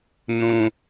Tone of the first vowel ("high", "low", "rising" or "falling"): high